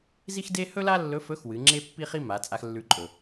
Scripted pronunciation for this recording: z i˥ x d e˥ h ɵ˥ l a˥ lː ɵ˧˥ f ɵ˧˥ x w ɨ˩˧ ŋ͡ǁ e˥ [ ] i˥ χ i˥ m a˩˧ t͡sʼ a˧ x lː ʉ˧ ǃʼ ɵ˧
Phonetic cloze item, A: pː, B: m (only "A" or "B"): A